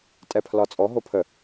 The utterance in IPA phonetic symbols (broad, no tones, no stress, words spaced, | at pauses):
tʼɛpʰlɒt͡sʼɔ ɦopʰə